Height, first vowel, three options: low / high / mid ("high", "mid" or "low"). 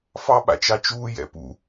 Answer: low